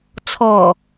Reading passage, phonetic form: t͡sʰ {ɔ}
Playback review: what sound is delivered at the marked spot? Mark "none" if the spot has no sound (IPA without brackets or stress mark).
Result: ɔ